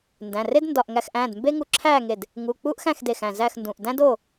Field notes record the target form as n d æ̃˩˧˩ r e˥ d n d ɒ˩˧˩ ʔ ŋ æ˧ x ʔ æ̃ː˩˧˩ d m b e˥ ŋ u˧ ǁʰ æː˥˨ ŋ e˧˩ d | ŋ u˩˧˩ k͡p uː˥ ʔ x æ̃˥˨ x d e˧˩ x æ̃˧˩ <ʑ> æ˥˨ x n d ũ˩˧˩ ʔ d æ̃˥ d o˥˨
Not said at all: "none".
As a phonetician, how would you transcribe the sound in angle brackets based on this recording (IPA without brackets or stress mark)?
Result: z